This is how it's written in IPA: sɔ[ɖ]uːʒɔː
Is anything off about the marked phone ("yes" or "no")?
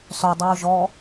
yes